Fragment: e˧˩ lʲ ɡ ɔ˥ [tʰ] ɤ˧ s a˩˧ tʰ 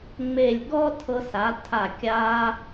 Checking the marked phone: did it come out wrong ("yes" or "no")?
no